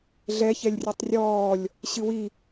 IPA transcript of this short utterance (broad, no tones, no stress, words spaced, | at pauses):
ɮɛçɛlʲ rʲɨtˤrʲɔːlʲ | ɕɨwi